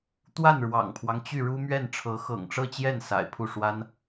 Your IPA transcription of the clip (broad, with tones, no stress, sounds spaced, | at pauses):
t̪ w a˥˩ n ɻ w ɑ̰˨˩ ŋ pʰ w ɑ˦ ŋ t͡ɕ y˥˩ ɻ u˥ m ɥ ɛ˥˩ n ʈ͡ʂʰ ɤ˧˥ x ɤ̰˨˩ ŋ ʈ͡ʂ ɤ˥˧ t͡ɕ j ɛ˥˩ n s a̰˨˩ ɪ̯ pʰ u˥˩ ʂ w a˥ n